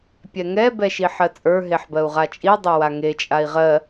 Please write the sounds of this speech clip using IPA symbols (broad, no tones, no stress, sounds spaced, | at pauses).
pʲ ɛ ŋ ɛ b ɛ ʃ i ħ ɜ t͡sʼ ə˞ ɦ e ħ b ɜ u̯ ʁ a t͡ʃʼ i dˤ ɛ w a ŋ e t͡ʃʼ a i̯ ʁ ɜ